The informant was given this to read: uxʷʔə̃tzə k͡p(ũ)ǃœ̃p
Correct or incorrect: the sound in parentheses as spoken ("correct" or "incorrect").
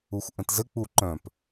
incorrect